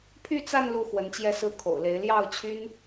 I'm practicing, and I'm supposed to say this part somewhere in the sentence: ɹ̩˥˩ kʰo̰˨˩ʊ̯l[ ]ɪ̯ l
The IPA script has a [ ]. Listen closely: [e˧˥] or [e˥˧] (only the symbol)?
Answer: e˧˥